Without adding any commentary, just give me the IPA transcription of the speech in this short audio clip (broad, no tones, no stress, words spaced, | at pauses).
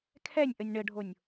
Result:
kʰɛnʲʔənʲ ɳəɖʱonʲ